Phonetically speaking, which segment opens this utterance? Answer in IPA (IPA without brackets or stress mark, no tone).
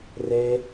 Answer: r